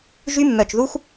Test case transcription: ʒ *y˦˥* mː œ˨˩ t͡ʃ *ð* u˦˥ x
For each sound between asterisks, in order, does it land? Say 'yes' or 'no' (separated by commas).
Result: yes, yes